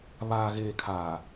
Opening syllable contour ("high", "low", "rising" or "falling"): low